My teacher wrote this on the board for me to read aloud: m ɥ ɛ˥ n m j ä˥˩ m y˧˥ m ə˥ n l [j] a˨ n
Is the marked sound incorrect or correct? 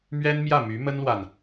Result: incorrect